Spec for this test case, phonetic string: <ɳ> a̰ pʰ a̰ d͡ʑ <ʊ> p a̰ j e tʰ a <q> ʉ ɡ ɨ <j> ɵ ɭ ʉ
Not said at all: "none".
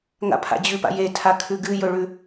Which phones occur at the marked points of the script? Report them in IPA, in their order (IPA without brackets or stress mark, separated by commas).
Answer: ŋ, ʉ, kʰ, j